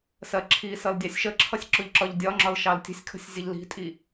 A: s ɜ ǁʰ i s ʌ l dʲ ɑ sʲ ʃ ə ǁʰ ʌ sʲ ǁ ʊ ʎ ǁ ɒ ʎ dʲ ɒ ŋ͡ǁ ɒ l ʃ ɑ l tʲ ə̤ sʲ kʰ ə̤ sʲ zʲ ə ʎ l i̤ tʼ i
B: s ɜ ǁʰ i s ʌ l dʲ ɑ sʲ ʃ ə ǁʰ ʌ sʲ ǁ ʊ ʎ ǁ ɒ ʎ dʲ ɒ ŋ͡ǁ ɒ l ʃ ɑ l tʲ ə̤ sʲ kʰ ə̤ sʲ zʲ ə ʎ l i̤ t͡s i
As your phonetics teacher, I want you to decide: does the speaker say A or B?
A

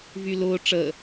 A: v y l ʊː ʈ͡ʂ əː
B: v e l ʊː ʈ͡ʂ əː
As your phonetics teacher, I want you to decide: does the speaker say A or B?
A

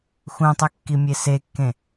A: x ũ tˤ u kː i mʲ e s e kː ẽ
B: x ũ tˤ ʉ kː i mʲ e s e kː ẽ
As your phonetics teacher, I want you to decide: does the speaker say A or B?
B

